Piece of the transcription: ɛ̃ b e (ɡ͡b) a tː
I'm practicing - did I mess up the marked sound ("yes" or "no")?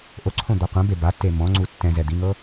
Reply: yes